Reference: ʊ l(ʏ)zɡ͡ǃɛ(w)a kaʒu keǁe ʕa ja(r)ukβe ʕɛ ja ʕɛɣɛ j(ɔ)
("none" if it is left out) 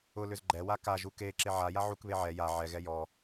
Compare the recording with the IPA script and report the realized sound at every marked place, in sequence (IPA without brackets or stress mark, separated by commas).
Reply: ʏ, w, ʕ, ɔ